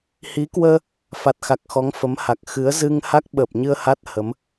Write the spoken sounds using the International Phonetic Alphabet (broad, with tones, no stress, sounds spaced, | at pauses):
h i˨˦ k w əː˧ | f a˨˩ t̚ x a˨˩ k̚ x ɔ˨˦ ŋ f ə˨˦ m h a˨˩ k̚ x ɨ˨˦ ə̯ z ɨ˧ ŋ h a˦˥ k̚ ɓ əː˨˩ p̚ ɲ ɨ˧ ə̯ h a˦˥ t̚ h ə˨˦ m